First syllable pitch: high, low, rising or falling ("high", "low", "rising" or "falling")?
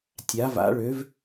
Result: rising